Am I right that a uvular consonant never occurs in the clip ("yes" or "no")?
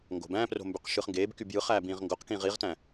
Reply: no